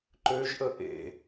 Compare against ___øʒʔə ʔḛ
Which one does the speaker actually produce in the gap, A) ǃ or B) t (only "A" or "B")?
A